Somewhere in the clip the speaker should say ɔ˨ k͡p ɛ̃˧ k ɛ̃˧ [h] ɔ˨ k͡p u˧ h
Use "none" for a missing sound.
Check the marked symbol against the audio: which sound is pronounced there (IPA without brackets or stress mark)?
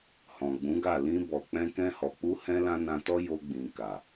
h